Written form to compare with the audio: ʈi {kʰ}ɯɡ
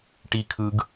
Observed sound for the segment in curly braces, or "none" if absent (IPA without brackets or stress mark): kʰ